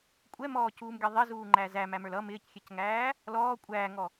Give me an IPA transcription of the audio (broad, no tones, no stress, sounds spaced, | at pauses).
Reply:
kʷʼ ɛ m ɔː c uː m ɡʲ ʌ ðˤ ɪ z uː ŋ͡ǃ æ z æ m æ m ə˞ l ʌ m ɪː c xʲ ɛ c ŋ æː | l ɔː kʷʼ æː ŋ ɔ